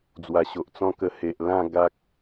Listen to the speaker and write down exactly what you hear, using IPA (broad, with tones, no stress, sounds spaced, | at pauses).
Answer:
d͡z w a˨˩ ɕ o˨ ʔ t͡s ɔ̃˦ k ə˧ h e˨ ʔ l ã˥˧ ɡ a˦ k̚